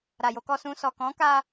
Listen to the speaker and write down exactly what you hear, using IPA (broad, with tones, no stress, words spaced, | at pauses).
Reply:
ɾa˨jo˧kɔ˧sũ˧ sɔ˨ kɔ̃˨˦ka˧